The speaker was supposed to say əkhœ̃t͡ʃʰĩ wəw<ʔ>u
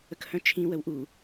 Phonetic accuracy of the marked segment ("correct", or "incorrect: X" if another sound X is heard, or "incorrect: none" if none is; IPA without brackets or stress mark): correct